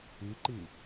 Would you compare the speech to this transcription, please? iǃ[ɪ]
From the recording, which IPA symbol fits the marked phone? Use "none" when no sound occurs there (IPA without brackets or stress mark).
i